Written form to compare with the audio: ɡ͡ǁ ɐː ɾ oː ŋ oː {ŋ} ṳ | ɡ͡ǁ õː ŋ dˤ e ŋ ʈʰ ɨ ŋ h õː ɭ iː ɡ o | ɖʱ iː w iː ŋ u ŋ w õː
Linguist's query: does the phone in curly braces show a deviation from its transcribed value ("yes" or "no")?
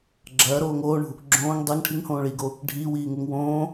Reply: yes